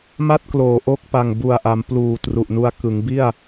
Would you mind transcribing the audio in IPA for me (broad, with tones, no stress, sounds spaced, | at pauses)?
m a˥˩ t̚ k l oː˩˦ ʔ o˦˥ k̚ p a˨˩ ŋ b u˨˩ a̯ ʔ a˩˦ m p l uː˨˩ t r u˨˩ ʔ n u˦˥ a̯ k ɯ˩˦ ŋ b i˥˩ a̯